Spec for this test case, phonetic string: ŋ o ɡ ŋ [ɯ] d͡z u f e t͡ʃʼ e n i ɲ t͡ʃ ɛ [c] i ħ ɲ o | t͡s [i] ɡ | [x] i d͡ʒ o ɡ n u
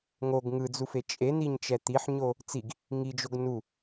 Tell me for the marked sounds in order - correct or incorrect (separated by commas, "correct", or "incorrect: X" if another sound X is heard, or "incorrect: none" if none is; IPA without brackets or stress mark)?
correct, incorrect: t̪, correct, incorrect: ŋ